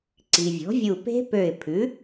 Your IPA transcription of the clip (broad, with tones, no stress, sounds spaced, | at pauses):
ǀ i˩ vʲ ɔ̤˩˥ vʲ u˧˩ p e̤˦˥ p ø˧˩ ɪ̯ pʰ ʉ˩˥